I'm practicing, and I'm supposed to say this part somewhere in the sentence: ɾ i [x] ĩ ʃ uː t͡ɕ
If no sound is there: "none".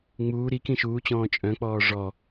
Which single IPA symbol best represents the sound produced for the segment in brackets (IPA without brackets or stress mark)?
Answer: k